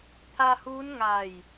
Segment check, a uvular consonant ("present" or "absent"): absent